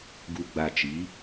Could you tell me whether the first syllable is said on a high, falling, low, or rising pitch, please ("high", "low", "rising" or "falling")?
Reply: low